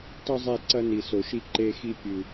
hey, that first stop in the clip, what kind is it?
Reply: plain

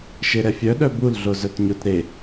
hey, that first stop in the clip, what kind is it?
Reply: implosive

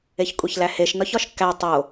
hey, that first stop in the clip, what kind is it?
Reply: ejective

